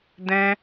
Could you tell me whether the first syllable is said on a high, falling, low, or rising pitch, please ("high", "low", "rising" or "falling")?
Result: high